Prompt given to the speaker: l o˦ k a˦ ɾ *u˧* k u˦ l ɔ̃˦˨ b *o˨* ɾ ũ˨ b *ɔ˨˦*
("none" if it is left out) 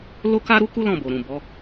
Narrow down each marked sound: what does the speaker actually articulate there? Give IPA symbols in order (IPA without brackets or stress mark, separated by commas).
u˦, o˨, ɔ˨˦